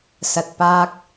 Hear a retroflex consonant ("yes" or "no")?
no